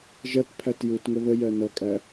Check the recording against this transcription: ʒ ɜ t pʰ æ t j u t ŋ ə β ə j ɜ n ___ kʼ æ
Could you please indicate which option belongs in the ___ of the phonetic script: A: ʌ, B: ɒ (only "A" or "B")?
A